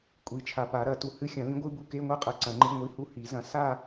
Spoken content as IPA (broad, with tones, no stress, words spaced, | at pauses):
kʷʼi˨˩t͡ʃʰa˨˩pa˨˩˦ ɾɐ˨˩˦tu˨˩˦ hɨ˧˥˧xʲɐ̃˨˩˦lĩ˨˥ɡʷɨ˧˥˧ bu˥˧ke˧˥˧ŋʷa˥qʼɐ˨˩ ǀɐ̃˨˩˦ŋ͡ǃɨ˧˥˧ŋʷi˧˥˧hu˥˧ hi˨˩˦zɐ̃˨˥ sa˥˧